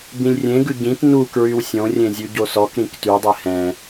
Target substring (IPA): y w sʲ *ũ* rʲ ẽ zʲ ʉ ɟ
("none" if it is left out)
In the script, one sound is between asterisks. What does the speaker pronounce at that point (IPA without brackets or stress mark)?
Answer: õ